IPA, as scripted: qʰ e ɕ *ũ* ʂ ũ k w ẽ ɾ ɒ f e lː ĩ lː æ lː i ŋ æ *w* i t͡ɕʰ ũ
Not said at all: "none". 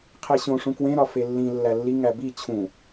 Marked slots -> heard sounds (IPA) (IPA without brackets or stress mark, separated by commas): õ, b